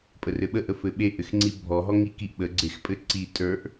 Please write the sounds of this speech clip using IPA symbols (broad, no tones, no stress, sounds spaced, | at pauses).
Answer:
pʼ ə r ɘ ɓ ə ʔ ə f ɘ ɓ e ʔ ɘ x ŋ͡ǀ i bʱ ɔ ɦ ɔ ŋ i k i ʔ ɓ ə ɡ͡ǀ e x pʼ ɘ ǀ i tʼ ə˞ ʔ